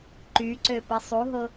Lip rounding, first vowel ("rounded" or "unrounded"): rounded